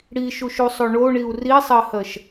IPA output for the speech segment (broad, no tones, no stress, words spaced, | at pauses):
ɽiʃuʃusˤo ɳoɳiu̯ risˤɜhɜʃ